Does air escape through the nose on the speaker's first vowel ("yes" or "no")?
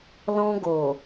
yes